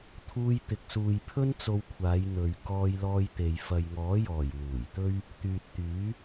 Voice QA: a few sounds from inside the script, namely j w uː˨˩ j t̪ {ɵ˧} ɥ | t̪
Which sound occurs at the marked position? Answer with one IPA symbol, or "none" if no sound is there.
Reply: ɵ˥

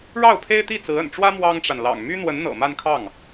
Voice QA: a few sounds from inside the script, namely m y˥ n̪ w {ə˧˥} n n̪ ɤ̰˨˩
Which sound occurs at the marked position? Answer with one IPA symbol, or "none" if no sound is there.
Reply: ə˧˥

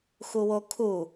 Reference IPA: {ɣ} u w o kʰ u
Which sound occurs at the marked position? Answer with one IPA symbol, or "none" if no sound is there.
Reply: x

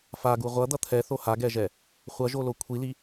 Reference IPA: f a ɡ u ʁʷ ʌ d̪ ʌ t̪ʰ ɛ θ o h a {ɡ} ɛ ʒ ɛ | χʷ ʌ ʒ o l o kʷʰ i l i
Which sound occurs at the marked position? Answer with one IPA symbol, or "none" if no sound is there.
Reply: ɡ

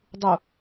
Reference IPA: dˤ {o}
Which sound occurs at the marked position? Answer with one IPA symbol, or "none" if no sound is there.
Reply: u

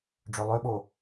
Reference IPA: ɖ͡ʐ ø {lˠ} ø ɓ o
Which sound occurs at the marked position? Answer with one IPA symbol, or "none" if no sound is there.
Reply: lˠ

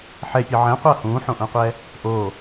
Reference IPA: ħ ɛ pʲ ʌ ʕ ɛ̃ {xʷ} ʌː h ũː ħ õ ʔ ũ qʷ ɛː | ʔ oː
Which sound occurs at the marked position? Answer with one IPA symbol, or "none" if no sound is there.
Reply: qʷ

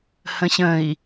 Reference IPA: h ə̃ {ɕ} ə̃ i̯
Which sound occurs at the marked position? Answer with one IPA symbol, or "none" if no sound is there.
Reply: ɕ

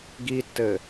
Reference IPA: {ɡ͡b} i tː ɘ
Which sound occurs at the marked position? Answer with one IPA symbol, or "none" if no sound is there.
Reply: ɡ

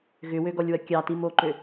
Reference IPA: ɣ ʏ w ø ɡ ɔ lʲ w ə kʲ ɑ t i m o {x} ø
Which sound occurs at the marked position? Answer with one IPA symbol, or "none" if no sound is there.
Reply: ǃ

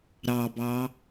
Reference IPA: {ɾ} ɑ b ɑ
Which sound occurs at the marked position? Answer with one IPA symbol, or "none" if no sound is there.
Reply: ɾ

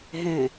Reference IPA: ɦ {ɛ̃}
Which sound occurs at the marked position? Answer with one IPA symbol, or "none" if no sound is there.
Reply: ɛ̃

